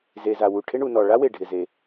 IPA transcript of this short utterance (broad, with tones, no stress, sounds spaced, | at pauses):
z e˩ z a˩ w u˩ ʈʰ ɪ˥ ɳ u˩ n ɔ˩ ɭ a˥ w e˩ ɖʱ ɪ˩ z e˩